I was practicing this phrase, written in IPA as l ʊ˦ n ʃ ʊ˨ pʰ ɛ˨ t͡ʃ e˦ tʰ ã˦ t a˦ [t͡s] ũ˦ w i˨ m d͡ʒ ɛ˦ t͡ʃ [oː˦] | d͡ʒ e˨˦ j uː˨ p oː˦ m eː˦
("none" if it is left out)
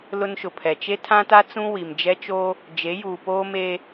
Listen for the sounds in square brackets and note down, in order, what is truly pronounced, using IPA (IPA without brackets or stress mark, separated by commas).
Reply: t͡s, oː˦